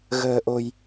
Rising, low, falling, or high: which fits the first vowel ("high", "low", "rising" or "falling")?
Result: low